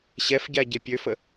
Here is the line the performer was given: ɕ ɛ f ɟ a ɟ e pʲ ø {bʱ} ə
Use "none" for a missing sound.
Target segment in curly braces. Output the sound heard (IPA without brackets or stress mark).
f